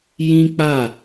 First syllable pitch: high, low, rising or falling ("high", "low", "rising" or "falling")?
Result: high